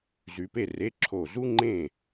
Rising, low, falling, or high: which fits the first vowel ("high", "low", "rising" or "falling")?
rising